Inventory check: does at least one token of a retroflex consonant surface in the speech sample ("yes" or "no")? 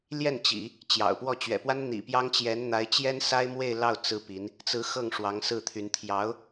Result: yes